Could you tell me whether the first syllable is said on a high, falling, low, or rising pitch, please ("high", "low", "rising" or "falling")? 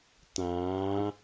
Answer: rising